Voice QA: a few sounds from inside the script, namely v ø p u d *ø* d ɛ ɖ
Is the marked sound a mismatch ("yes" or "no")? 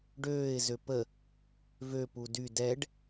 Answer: yes